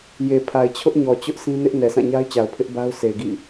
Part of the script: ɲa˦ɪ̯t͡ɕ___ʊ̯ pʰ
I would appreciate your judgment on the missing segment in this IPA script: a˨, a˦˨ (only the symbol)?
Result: a˨